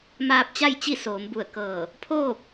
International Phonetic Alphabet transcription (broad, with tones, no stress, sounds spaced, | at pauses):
m aː˧ p̚ t͡ɕ a˥˨ j t͡ɕ i˥˨ s oː˩˧ m b u˧˩ ə̯ k ɤː˧˩ | pʰ oː˥˨ p̚